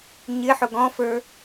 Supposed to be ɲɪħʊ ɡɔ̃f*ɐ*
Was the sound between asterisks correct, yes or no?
no